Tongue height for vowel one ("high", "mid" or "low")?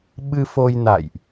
high